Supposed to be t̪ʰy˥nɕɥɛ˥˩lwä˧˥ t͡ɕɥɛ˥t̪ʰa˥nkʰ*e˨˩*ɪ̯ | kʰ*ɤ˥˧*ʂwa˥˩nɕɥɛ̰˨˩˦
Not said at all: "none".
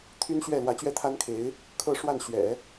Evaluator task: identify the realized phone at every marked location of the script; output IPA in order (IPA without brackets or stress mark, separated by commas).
e˧˥, ɤ˥˧